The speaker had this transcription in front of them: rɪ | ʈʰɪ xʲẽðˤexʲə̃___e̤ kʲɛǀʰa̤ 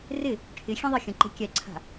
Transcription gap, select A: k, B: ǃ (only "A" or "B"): B